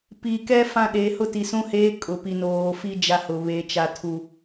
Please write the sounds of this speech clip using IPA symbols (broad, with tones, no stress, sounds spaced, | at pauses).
p i˨ k ɛ˦ f ã˦ ɗ e˨˦ h ʊ˦ t i˨ s ũ˦ h eː˦ kʼ ʊ˨ p i˨ n oː˨ f i˦ d͡ʒ a˦ h ʊ˨ β e˨˦ t͡ʃ a˨ tʰ u˨